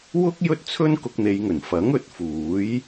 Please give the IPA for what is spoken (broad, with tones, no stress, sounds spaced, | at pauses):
w ʊ˥ k̚ j ɵ˥ t̚ t͡sʰ ɵ˥ n k ʊ˧ k̚ n̪ e˨˧ j ŋ ɵ˨˩ n f ɐ˨˥ ŋ ɵ˨ t̚ f uː˨˥ j